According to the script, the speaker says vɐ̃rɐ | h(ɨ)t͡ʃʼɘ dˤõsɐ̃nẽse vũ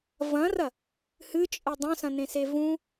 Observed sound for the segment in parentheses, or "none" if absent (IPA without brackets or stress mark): ɨ